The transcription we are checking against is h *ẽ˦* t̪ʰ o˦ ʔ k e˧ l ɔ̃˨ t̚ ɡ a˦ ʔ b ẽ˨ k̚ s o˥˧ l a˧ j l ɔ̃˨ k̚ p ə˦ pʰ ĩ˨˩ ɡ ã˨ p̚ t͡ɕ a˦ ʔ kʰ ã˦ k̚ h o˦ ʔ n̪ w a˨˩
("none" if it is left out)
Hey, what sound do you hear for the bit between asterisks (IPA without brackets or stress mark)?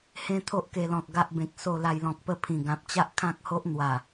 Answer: ẽ˦